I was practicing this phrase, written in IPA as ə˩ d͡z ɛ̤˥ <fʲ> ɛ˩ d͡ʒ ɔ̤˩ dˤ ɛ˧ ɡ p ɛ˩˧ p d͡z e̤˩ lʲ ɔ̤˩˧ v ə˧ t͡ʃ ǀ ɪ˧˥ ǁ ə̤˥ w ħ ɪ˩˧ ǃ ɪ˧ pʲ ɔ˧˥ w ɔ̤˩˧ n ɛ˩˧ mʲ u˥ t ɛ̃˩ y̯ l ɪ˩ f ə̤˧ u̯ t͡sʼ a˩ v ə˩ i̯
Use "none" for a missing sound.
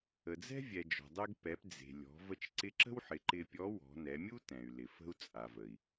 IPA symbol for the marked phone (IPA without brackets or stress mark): vʲ